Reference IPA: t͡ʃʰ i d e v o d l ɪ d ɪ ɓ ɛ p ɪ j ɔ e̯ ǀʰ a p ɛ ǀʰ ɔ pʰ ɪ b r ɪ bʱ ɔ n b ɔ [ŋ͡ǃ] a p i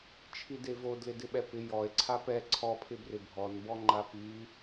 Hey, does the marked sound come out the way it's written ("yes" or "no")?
yes